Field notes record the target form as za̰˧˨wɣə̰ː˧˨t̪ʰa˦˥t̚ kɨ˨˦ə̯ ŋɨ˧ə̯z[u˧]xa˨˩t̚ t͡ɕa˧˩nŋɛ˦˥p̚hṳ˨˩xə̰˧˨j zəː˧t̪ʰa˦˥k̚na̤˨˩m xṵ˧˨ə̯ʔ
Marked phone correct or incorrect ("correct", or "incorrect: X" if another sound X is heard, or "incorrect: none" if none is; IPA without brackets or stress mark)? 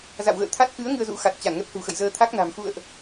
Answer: incorrect: ṵ˧˥